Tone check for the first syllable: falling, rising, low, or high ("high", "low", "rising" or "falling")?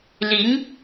rising